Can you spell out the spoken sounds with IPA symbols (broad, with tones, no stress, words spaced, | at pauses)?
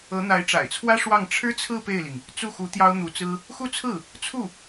ɤ˧˥n̪a˧˥ɪ̯ʈ͡ʂa̰˨˩ɪ̯t͡sʰwä˥ ʂwɑ˥˩ŋ ʈ͡ʂʰɻ̩˥t͡sʰɹ̩˥˧ pe˥˩ɪ̯li˩ŋ | t͡su˥˩xu˧˥ t̪jɑ˥ʊ̯n̪u˧˥t͡sɹ̩˥ | xu˥˧t͡sʰɹ̩˥˩ | t͡sʰu˥˩